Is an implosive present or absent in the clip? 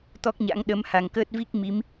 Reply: present